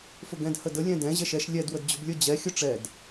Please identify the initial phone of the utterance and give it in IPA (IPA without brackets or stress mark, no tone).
f